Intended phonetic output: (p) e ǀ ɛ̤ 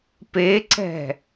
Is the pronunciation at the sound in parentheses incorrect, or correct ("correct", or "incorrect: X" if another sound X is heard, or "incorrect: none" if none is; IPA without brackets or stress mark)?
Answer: correct